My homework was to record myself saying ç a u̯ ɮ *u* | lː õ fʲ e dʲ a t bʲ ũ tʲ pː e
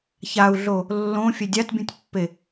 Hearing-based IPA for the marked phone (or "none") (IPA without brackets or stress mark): o